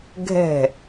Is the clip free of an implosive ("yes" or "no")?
yes